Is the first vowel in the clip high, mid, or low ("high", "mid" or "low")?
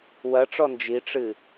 low